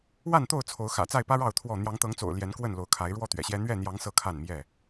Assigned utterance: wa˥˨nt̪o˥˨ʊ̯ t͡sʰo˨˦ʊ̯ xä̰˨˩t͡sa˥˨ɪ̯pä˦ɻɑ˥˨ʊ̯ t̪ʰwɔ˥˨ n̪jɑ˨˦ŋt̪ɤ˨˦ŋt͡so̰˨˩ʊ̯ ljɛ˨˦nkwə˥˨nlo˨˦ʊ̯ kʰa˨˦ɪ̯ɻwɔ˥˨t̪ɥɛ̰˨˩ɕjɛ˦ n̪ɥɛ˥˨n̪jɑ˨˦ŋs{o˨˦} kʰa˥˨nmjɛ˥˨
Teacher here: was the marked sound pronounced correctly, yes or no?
no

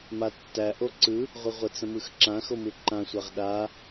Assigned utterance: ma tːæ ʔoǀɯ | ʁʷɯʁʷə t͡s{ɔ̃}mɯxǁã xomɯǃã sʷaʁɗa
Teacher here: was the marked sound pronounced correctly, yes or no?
no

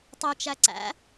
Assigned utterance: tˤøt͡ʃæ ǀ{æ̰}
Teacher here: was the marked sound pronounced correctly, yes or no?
yes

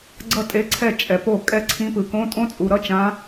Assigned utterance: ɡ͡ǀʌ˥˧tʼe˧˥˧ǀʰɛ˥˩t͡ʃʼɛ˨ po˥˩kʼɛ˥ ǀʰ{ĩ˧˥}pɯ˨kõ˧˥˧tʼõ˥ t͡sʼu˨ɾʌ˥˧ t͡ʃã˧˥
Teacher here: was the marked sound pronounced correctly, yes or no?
yes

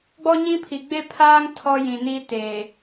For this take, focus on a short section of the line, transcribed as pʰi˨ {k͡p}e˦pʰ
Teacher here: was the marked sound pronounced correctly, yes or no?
no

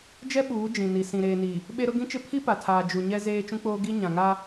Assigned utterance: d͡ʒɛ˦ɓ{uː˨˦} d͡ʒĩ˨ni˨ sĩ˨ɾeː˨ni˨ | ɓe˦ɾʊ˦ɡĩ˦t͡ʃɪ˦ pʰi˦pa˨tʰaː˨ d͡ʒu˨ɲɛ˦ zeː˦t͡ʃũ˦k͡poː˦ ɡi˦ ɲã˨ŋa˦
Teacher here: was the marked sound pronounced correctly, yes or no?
yes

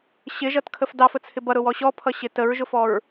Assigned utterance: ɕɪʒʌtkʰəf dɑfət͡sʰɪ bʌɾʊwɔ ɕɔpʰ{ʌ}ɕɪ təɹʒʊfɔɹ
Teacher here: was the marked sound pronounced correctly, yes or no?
yes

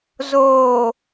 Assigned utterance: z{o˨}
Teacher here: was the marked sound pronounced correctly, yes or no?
no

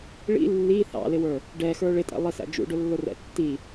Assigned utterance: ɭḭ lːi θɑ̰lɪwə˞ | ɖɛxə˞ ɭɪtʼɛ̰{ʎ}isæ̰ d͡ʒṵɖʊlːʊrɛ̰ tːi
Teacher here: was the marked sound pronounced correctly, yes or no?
no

